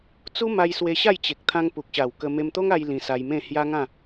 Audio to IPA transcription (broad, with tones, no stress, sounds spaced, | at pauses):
t͡s u˦ m a˧ j s w e˧ ɕ a˥˧ j t͡ɕ e˨ k̚ t̪ʰ ã˦ ŋ p u˨ k̚ ɕ a˨˩ w k ə˧ m e˧ m t̪ o˦ ŋ a˧ j l ĩ˧ s a˧ j m ẽ˥˧ h j a˦ ŋ ã˥˧